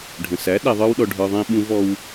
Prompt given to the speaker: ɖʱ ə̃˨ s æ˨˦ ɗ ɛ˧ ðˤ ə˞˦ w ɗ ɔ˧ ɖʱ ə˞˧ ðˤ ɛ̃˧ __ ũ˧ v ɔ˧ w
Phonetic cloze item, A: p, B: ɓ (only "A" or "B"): B